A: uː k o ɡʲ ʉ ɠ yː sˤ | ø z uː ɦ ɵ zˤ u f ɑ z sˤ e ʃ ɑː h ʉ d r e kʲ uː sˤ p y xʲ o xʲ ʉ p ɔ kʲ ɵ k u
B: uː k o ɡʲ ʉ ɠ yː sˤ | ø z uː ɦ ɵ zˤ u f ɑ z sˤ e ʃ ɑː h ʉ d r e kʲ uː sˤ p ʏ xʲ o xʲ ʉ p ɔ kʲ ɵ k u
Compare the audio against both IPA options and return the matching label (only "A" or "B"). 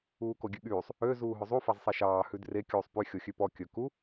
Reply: A